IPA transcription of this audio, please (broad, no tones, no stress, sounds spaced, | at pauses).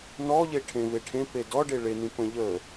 n ɔ ʎ e ʈʰ ẽ v e ʈʰ ẽ p e d ɔ ɖ e ɭ e n ĩ p ə̃ ʎ ə